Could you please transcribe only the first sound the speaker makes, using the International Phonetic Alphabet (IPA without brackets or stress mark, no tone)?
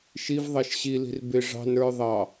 ʃ